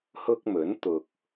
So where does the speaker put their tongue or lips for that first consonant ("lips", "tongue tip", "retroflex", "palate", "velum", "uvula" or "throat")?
throat